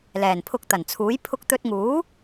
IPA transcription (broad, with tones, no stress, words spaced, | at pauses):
lɛː˨˩npʰʊ˧k̚t̪ɐ˨˩nt͡sʰuː˨˥j pʰʊ˧k̚t̪ɵ˧t̚ŋuː˨˥